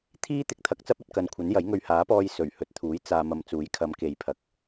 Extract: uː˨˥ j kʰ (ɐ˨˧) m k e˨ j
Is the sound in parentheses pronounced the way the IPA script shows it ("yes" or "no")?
yes